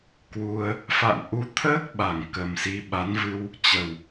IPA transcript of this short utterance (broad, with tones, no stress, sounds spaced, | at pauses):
k w u˧ ə̯ | f a̰˧˨ n ʔ u˨˦ t̪ʰ əː˦˥ k̚ ɓ a˧˩ ŋ k ə˨˩ m s i˨˦ ɓ a˨˦ n v ɨ˧ w | t͡ɕ ə˨˩ w